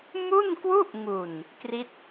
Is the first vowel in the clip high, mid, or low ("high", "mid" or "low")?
high